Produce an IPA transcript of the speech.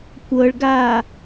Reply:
kʷɤɭɡaː

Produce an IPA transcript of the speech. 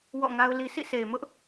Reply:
wɔ̰˦˨ŋa˦ʊ̯li˦ sʰḭ˦˨se˨ɪ̯mʊ˦ʔ

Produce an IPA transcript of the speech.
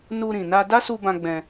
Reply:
nu˧ɾĩ˨ na˧da˦su˧bã˧ ɡ͡bɛ̃˧

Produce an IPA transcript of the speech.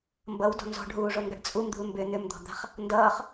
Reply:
mbʌwdɔ̤ nzɔ̤ɖɦuːʐonɡʌɖ t͡sʼumd̪ṳl mbʏ n̪ʏmd̪ɔ̤d̪a̤χ | ndʌːχ

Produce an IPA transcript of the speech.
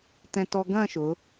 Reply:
tɛ̃˧tɔ˧ɡɐ̃˥˧ ʃʊ˩˧

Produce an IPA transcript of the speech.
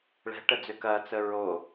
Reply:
ɭɛ̤ʈəd͡zø kɐt͡sə ɹo

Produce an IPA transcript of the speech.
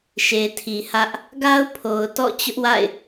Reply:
ʃe˨tʰi˨hä˦ʔ | ɡa˦ʊ̯pʰo˨ʊ̯tɔ̰˦˨ t͡ɕʊ˦ʔwa̰˦˨ɪ̯

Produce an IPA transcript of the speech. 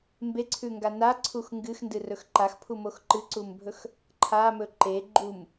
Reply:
mbeǀʰʉŋɡa naǀʰux ŋɡɨxndɨrɵx ǃaxpʰumox ǃɨǀumbʱɵx | ǃʰamɵ ǃe ɡ͡ǃum

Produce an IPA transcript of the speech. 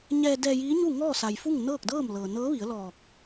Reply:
ɲɛː˧dɛː˧jiː˧˥ɲu˥˨ ŋɔː˥˨sa˩jfu˥˨ŋ nɤː˥˨k̚dɤː˥˨mlɤː˩ nɤː˧˥ʋi˩˧ə̯lɔː˧˩k̚

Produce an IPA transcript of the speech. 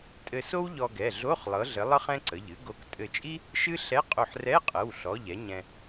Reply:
tʼɘ˧so˥w ʎɔ˧ɡɛ˩˧˩ɮo˧˥˧χ lˠɤ˨˥ɮɘ˨˥lˠɤ˥χ ɛ̃˥ǀə˩˧˩ʎɨ˨˥ ɡo˨˥k tʼɘ˧˩t͡ʃʼi˥ | ʃɨ˥ɬɛ˧˥˧ qʼo˧˩ħrɛ˧˥˧qʼɤ˩˧˩wɬɔ˩˧˩ʎ ɛ˨˥ɲɛ̃˧

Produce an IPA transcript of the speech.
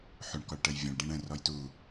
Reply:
ħuɳkɔɭʈəj vʲə̃ɭ ɖĩɳə̃ rɔjtu

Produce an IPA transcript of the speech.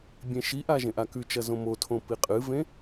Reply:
bʲẽʃiʔa ʒẽʔakʉt͡ʃɐ zõmotʰõ piqʼɨvẽ

